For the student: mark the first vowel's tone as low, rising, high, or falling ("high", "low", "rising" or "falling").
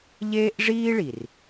high